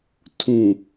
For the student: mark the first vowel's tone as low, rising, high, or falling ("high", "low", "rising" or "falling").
low